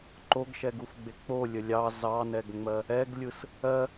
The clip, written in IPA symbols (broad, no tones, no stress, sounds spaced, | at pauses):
ǃ o ɡ ʃ ɛ ɡ u f ɡ͡b e k͡p o lʲ ə lʲ ɑ z ɑ n ɛ ɡ ŋ͡m ɜ | ɛ ɡ lʲ ɯ s | ɜ